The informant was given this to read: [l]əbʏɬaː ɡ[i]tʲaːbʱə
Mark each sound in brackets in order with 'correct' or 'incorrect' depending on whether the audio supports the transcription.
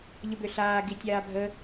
incorrect: ʎ, correct

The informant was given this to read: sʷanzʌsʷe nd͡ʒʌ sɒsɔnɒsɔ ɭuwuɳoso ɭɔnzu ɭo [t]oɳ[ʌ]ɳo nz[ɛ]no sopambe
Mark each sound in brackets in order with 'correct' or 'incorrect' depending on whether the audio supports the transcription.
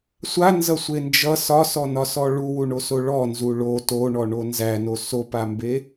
correct, incorrect: ɔ, incorrect: æ

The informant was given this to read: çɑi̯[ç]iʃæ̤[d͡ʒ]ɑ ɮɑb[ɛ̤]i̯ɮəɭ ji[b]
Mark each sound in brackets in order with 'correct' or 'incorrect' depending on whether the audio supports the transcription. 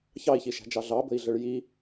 correct, correct, incorrect: ə̤, incorrect: none

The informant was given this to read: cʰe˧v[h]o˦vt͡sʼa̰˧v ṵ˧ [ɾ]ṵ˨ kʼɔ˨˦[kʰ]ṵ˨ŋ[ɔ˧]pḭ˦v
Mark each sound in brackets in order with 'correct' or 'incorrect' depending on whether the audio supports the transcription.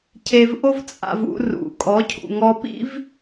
incorrect: ʔ, incorrect: r, incorrect: cʰ, correct

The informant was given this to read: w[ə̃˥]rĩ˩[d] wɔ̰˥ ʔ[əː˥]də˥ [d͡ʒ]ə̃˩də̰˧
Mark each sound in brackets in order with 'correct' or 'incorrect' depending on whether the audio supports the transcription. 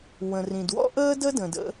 incorrect: ə̃˩, correct, correct, incorrect: d

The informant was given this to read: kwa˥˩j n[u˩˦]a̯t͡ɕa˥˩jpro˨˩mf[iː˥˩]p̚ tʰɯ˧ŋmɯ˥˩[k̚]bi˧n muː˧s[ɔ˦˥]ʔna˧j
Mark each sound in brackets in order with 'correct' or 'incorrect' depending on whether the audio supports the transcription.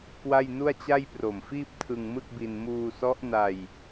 incorrect: u˥˩, correct, correct, correct

